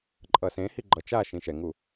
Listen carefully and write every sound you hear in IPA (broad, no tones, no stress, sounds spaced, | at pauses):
ǃʼ ʌ s ẽ h i ɡ͡ǃ ʌ t͡ʃ a ʃ ĩ ʃ ɛ ŋ u